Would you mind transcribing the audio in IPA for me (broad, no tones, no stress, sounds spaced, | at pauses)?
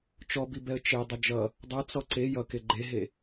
t͡ʃ ɔ b i b ɛ ə̯ t͡ʃ e dˤ ʌ d͡ʒ ʌ | dˤ ʌ t͡s ɔ ǀ e j ʌ k e ɡ͡ǃ e ɦ e